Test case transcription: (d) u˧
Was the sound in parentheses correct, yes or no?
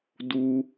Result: yes